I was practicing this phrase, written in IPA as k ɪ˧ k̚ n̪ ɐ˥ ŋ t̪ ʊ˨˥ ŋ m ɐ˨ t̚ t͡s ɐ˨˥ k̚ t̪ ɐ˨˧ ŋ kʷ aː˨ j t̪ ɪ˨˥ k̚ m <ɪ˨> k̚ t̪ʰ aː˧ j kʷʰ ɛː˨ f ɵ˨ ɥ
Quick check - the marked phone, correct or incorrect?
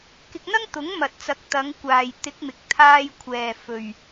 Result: correct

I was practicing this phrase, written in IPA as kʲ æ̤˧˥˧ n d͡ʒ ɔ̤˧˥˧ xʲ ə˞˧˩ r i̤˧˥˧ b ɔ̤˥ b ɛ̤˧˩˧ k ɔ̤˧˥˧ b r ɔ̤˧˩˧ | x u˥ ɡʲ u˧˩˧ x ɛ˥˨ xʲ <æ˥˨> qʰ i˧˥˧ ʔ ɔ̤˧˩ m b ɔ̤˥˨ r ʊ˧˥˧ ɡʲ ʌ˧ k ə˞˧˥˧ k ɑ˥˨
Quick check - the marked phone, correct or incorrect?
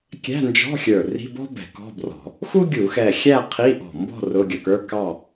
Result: correct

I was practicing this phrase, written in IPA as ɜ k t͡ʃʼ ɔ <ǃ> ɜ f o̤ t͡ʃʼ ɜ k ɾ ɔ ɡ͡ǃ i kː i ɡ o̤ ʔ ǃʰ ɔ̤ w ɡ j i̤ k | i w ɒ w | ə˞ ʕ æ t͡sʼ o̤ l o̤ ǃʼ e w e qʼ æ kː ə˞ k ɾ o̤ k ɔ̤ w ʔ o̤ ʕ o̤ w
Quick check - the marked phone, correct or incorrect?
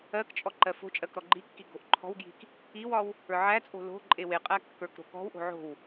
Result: correct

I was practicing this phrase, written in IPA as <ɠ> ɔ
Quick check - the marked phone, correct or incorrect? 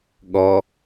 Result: correct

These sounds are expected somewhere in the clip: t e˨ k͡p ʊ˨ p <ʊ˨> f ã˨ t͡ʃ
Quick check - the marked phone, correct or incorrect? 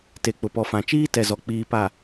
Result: incorrect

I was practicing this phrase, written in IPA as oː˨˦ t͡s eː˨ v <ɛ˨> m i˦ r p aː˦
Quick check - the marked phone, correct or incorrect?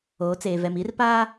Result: correct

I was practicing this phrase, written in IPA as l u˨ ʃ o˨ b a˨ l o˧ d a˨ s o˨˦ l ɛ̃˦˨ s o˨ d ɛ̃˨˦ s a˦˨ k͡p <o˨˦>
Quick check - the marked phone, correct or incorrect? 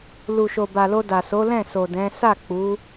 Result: incorrect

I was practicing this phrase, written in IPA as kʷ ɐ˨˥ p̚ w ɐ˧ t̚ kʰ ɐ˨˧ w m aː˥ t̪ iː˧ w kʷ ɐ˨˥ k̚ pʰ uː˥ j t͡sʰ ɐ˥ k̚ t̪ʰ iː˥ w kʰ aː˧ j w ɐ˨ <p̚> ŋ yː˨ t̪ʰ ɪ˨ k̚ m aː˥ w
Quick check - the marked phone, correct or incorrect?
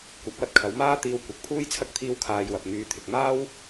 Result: correct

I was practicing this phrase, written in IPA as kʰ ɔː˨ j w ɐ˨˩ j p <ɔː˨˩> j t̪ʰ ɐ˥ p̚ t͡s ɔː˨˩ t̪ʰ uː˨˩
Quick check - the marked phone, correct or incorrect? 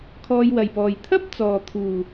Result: correct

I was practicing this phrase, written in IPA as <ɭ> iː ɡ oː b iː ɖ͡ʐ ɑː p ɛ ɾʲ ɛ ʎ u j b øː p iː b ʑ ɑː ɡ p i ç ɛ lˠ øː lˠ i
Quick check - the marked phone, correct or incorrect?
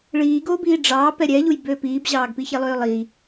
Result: correct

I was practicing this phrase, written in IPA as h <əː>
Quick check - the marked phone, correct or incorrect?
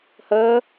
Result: correct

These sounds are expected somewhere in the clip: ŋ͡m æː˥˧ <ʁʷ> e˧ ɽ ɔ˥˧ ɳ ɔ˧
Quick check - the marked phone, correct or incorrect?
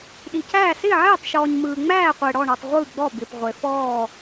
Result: incorrect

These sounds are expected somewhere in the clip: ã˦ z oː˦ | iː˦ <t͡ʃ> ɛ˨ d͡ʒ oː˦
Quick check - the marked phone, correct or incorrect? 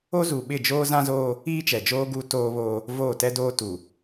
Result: correct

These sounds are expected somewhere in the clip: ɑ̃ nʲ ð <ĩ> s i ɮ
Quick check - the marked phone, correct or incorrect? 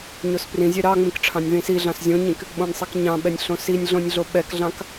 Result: correct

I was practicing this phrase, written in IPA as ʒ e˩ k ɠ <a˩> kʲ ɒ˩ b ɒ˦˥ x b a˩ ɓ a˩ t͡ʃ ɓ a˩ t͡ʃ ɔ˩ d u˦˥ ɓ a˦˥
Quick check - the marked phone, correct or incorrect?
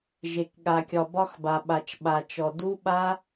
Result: correct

